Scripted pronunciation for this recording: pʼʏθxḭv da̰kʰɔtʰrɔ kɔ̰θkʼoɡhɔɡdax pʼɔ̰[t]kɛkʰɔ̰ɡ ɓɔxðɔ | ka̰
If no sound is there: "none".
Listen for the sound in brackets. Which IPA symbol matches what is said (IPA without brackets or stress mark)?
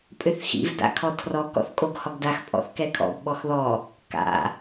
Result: θ